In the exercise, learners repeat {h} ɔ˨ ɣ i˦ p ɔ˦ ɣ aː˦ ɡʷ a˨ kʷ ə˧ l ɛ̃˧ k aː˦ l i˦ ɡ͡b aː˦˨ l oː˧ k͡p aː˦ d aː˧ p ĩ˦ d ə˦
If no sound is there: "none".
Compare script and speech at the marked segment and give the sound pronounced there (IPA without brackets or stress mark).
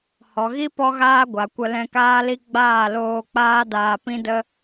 h